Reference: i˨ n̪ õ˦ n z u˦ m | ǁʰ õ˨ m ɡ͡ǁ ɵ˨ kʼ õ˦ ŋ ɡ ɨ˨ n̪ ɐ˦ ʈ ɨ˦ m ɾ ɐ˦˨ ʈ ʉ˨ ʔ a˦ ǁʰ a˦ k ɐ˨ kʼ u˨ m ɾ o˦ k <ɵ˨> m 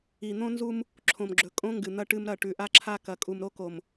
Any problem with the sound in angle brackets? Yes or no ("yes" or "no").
yes